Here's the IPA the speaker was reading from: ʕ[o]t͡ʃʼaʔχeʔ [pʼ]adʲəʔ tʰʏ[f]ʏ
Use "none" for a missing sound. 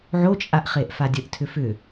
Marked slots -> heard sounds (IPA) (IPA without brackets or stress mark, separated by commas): o, f, f